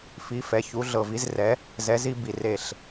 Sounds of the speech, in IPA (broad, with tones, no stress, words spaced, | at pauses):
fi˨˥ fɛ˩˧˩ çu˨˥ɮɤ˧˩vi˨˥zrɛ˨˥ | zɛ˨˥zi˦bi˧˩ re˧˩ɬ